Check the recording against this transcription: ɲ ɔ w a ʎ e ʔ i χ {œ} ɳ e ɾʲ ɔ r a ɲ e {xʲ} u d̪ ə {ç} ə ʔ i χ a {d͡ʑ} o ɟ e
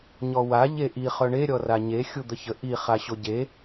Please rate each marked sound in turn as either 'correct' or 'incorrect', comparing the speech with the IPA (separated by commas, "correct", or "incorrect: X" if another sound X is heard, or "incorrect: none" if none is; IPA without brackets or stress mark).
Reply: correct, correct, correct, incorrect: ɕ